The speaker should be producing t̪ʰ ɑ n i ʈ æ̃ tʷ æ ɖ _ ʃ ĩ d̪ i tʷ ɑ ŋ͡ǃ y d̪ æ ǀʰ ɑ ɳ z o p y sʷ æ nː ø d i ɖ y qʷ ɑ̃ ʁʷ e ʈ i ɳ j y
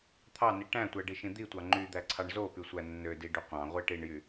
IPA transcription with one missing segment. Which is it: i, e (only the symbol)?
i